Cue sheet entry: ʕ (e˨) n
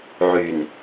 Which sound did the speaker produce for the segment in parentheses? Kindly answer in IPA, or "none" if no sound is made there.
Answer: y˨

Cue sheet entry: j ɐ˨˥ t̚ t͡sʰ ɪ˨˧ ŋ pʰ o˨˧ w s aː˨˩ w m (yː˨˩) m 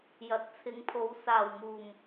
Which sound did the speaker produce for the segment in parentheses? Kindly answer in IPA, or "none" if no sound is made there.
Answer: uː˨˩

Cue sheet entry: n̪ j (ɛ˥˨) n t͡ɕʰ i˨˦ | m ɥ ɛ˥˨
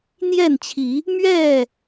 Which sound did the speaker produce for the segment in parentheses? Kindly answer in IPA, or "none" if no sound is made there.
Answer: ɛ˥˨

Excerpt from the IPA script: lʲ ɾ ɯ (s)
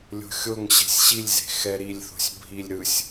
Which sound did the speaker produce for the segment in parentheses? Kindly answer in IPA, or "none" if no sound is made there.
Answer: sʲ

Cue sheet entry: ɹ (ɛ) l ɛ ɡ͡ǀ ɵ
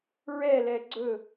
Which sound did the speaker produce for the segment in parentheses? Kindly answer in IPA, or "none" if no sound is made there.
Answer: ɛ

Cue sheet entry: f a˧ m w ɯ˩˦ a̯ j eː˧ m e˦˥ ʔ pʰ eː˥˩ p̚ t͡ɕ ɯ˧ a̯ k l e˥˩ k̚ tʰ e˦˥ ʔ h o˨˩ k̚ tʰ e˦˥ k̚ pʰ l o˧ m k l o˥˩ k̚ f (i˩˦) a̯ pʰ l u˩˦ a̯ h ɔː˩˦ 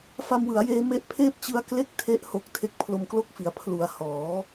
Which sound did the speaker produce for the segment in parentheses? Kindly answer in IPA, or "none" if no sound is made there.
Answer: i˩˦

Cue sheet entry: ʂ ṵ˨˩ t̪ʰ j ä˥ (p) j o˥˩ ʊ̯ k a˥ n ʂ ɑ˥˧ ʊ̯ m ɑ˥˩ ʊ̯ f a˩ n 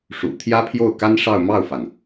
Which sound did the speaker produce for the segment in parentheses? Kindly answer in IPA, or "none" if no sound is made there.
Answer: pʰ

